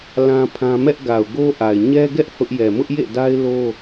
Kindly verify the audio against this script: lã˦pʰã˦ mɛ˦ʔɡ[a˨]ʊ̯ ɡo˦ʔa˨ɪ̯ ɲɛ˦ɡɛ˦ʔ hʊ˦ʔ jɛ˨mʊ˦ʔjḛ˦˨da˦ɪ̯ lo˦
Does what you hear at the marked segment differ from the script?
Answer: no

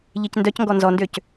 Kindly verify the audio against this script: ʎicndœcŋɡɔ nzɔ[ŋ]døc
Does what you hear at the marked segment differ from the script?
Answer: yes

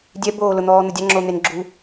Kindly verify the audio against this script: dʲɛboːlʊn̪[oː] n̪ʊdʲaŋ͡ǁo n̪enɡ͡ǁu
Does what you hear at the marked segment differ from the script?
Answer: yes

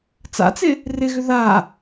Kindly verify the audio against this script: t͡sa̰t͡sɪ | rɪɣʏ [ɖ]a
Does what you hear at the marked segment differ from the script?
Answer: yes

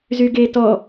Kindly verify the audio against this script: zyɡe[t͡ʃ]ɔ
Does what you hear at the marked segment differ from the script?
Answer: yes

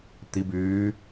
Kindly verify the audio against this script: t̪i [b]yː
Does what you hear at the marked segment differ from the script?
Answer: no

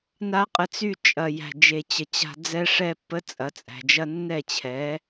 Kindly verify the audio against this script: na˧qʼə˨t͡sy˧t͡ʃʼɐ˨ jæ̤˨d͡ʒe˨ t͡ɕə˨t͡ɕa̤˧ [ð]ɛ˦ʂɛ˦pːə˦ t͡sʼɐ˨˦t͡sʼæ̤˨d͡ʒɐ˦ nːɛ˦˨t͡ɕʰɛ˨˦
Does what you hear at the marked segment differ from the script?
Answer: yes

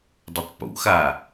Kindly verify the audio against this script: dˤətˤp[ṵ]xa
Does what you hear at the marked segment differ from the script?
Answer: no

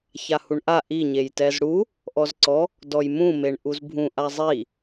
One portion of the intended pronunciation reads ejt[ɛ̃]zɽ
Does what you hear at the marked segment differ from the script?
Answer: yes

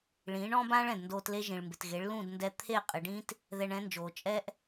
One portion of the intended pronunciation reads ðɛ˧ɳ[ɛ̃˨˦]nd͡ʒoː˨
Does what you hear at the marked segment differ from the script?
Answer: no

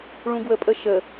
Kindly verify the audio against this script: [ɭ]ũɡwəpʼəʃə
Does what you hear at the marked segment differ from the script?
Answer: no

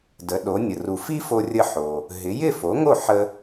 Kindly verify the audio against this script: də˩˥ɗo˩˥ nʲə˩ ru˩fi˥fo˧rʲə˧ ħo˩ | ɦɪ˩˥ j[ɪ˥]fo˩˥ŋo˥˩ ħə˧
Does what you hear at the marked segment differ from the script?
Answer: yes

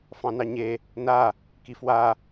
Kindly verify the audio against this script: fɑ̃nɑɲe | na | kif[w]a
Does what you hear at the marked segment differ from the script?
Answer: no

